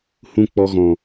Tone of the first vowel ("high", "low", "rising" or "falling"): falling